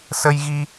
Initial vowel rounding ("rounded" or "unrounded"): unrounded